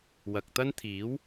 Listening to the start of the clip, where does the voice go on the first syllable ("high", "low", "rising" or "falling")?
low